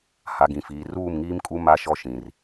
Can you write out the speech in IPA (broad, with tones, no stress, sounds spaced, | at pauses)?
h a˨ ɡ ĩ˨ f iː˨ r uː˦˨ m ŋ iː˦ m kʼ u˦ m a˦ ʃ ɔ˦ ʃ ĩ˨ r